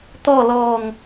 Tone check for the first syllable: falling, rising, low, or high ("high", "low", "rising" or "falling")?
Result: falling